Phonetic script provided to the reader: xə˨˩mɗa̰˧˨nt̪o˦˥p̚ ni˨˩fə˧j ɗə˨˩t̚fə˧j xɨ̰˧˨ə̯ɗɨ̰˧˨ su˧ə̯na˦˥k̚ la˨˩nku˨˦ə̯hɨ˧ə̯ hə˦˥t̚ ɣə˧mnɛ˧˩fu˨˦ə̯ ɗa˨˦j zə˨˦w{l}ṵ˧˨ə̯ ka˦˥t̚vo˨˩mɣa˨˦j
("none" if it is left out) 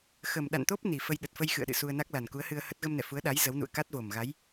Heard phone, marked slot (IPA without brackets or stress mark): n